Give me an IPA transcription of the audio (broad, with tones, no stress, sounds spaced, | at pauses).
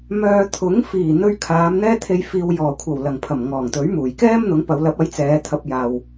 m œː˨ t̪ʰ ʊ˨˥ ŋ f iː˨˩ n̪ ɵ˧ ɥ kʰ aː˨˧ m n̪ ɛː˥ t̪ʰ e˧ j f iː˨ w j ɔː˨˩ kʷʰ ɐ˨˩ w l ɐ˨˩ ŋ pʰ ɐ˨˩ m ŋ ɔː˨˩ ŋ t̪ ɵ˨˥ ɥ m uː˨˩ j k ɛː˥ m n̪ ʊ˨˥ ŋ p ɐ˨˧ w l ɐ˨˥ p̚ ɐ˨˥ j t͡s ɛː˨˧ t̪ʰ ɐ˧ p̚ j aː˨ w